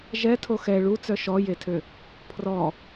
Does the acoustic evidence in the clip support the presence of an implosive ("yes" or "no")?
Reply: no